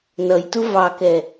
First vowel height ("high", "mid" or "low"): mid